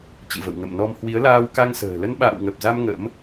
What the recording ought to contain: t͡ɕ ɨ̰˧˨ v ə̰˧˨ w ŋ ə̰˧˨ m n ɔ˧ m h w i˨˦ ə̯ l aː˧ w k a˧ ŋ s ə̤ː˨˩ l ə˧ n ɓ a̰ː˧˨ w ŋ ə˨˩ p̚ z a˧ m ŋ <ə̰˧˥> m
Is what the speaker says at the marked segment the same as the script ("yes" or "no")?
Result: yes